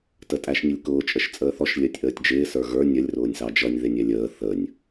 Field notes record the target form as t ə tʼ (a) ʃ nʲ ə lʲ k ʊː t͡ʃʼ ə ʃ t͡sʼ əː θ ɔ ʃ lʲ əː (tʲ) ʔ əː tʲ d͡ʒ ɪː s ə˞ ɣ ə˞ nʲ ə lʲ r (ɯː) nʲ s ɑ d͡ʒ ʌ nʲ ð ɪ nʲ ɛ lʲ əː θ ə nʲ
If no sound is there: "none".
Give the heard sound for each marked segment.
æ, tʲ, ʊː

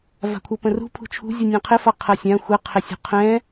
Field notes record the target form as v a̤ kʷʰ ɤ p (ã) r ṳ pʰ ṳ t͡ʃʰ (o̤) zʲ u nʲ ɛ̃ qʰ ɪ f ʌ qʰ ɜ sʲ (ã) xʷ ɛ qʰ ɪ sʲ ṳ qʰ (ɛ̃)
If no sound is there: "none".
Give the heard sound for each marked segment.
ə̃, ṳ, ã, ɛ̃

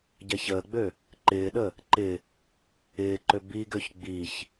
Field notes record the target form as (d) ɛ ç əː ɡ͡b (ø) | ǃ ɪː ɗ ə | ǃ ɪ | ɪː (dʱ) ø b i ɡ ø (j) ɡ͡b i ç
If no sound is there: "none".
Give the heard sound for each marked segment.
ɟ, ø, ǃ, ç

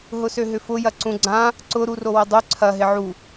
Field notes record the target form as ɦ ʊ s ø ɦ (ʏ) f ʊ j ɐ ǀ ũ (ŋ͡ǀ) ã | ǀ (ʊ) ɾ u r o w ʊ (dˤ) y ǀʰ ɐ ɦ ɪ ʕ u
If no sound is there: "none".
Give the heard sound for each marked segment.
ʏ, ɡ͡ǀ, ʊ, dˤ

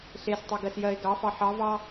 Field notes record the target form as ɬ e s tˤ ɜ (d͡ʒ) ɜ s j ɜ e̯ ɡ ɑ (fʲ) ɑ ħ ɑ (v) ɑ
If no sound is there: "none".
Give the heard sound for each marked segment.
ɡ, f, v

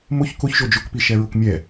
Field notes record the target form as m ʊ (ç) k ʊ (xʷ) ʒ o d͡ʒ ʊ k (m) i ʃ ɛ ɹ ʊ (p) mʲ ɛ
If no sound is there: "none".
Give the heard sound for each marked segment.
ç, ç, p, k

